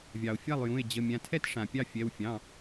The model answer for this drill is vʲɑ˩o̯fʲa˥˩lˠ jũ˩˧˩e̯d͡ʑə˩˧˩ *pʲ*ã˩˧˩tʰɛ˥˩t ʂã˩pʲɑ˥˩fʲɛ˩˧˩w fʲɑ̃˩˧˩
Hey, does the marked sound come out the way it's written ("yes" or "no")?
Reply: no